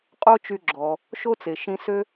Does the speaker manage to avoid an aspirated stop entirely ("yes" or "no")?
yes